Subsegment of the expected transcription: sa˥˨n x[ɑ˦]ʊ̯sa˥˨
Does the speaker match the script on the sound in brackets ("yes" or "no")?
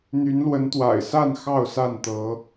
no